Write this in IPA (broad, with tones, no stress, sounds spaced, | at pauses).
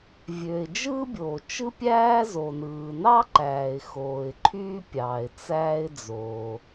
vʲ ø˩ ɪ̯ d͡ʒ ɯː˥ bʲ oː˩ t͡ʃ ɯ˥ pʲ æː˥ z o˩ n ɯː˩ n ɑ˥ ǃ æː˩ ɪ̯ x oː˩ ɪ̯ ǃʰ yː˥ pʲ ɑː˩ ɪ̯ t͡s æː˥ ɪ̯ d͡z oː˩